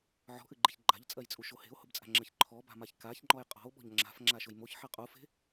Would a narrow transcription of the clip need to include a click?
yes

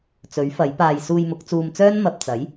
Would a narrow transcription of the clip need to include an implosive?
no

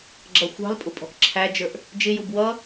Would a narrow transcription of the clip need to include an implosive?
no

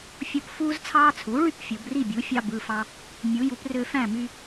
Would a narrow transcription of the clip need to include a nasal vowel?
yes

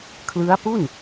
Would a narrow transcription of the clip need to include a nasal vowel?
no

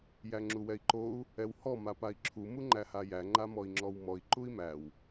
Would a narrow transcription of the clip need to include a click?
yes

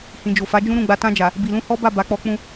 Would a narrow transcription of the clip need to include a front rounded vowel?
no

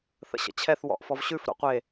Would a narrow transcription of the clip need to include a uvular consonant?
yes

